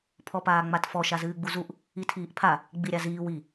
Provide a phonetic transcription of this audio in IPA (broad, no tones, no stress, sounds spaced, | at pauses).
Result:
pʰ ɔ p aː ŋ͡m a t f ɔ ʃ a z ɨː ɡ͡b u z u ʔ | i tʰ iː ʔ pʰ a | ɡ͡b i ɾʲ a z iː w i